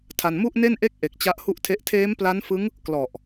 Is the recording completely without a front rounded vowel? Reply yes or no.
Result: yes